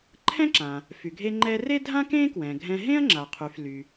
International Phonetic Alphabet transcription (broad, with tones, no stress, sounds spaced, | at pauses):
ǃʰ ɛ̃˥ ǁ ã˩ | f y˩ ɡʱ e˧ ŋ͡ǃ ɛ˧ r e˥ dʱ ã˥ k ẽ˥ k w ɛ̃˩ ɡʱ ɛ̃˧ ɦ ẽ˥ ɐ̯ ŋ͡ǁ a˩ qʰ y˩ f l y˩